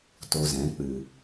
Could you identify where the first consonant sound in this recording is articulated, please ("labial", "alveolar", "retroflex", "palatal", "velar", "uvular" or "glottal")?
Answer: alveolar